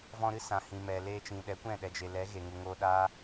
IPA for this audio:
v ɔ̃˧ ɾ ɨ˦ s ã˨ h ĩ˨ m ɛ˨ l eː˧ t͡ʃ ĩ˨ ɗ ɛ˨˦ kʷ ɛ̃˦˨ ɗ ɛ˨ d͡ʒ e˨ l ɛ˨˦ ɣ e˨ ŋ u˨ ŋ oː˧ ɗ aː˦

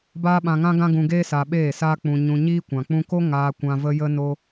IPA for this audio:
b aː˦ ɓ ã˧ ŋ ã˦ ɡ ã˦ ɡ ũ˧ ɡ eː˦ s a˧ ɓ eː˦˨ s aː˦ k͡p ũ˧ ɲ ũ˧ ɲ iː˦ kʷ ã˨ k͡p ũ˧ k o˦ ŋ aː˧ kʷ ã˧ v ə˧ j ə˧ n o˧

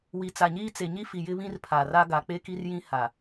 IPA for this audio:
w i˨ t͡s a˨ ɲ iː˦ t͡s e˨ ɲ i˦ f i˨ j ɪ˦ β ĩ˦ r pʰ a˨ r a˦ ɡ a˨ k͡p e˦ k i˦ r j ĩ˦ h a˨

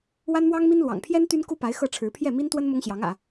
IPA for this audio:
w a˥ n m w ɑ˥ ŋ m i˥ n l w ɑ̰˨˩ ŋ pʰ j ɛ˥ n t̪ y˥ n k u˥ p a˧˥ ɪ̯ x ɤ˥˩ ʈ͡ʂʰ ɻ̩˧˥ pʰ j ɛ˥˩ m i˥ n t̪ w ə˥ n m ʊ˥ ŋ ɕ j ɑ˧˥ ŋ ä̰˨˩˦

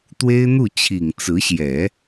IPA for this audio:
t̪ w e˥ ɪ̯ n̪ u˥˩ t͡ɕʰ i˨˩ ŋ t͡s ɹ̩˧˥ ɕ j ɛ˨˩˦

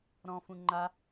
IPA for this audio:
ɾ ɔ̃ f ũ ŋ͡ǃ a

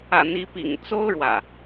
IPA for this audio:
ä̰˨˩ n̪ i˨˦ p ḭ˨˩ ŋ t͡s o˦ ʊ̯ ɻ w ä̰˨˩

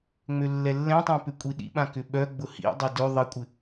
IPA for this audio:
ŋ͡m ø lː ɛ lː ɛ̃ tˤ õ p ʏ kʷʼ i ɗ ḭ ɓ ã k ʏ ɓ œ ɡ͡b ʊ h ḭ dˤ ɛ d ø ðˤ ɪ kʷʼ ɪ

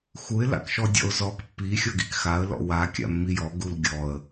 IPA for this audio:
x u ɪ̯ l a̰ k ʃ ɔ dʲ ɔ̰ ʊ̯ z ɔ k pː i xʲ ɔ ɡ i k x a ə̯ l ɔ̰ w a kʲ a̰ mː i j ɔ ɡ u l ɡʲ ɔ ə̯

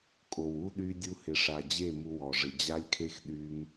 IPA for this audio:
kʼ o˨ w u˦ ɗ y˦ dʲ u˧ h ɪ˨ ʂ a˨ d͡ʑ e˦˨ m u˦ w ɔ˨ ʐ ɪ˧ d͡ʑ a˦ lʲ kʰ e˦ x ɗ y˦ m

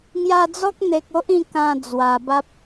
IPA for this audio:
ŋ j a˧ d͡z ɔ˦ k̚ n̪ e˨ k̚ o˦ ʔ ĩ˥˧ k ã˧ d͡z w a˨˩ b a˦ p̚

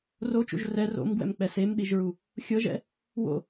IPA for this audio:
r o t͡ʃ ṵ ʒ r ɛ r o̰ m ɡ w ɛ̰ m k͡p ɛ s e m ɗ i ʒ ɹ u | xʲ ɤ ʒ ɛ̰ | w o̰

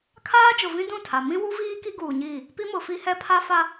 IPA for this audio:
kʰ aː˦ d͡ʒ ʊ˨ v ĩ˦ d ũ˦˨ tʰ a˨ m ĩ˦ w u˦ v iː˦ k i˦ ɡ uː˨ ɲ iː˦˨ | p i˦ m ʊ˨ f i˦ h ɛ˦ pʰ a˦ f a˦

